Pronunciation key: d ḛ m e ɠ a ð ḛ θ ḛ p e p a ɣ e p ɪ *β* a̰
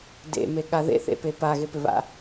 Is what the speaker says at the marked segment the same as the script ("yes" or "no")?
yes